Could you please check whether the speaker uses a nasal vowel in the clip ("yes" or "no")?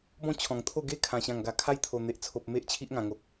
yes